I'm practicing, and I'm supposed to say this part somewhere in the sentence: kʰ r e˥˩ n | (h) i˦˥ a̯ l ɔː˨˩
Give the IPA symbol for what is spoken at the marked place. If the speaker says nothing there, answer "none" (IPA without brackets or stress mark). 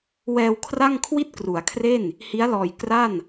h